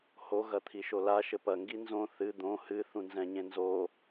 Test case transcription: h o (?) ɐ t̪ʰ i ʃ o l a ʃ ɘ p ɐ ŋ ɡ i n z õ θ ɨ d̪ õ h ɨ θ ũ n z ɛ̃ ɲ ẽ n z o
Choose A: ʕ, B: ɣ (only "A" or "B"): B